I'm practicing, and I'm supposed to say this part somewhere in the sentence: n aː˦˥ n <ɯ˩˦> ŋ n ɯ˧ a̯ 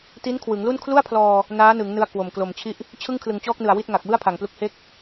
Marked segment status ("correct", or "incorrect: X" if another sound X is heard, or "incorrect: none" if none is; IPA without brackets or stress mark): correct